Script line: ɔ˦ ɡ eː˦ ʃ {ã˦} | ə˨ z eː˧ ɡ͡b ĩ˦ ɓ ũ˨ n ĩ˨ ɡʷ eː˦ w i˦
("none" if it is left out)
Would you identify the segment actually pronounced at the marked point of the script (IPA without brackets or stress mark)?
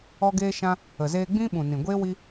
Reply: ã˦